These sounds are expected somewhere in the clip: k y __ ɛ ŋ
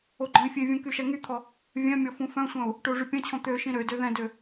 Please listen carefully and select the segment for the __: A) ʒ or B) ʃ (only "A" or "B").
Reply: B